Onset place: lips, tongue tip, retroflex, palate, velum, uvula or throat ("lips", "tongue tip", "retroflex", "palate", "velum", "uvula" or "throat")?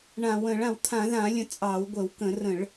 retroflex